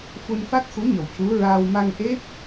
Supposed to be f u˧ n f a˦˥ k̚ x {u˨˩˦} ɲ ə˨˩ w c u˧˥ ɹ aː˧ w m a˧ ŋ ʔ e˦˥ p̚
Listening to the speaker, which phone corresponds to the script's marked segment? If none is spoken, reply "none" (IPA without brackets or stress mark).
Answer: u˧˥